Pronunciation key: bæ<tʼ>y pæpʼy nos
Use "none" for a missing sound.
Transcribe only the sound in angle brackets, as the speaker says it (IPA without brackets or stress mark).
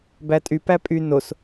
tʼ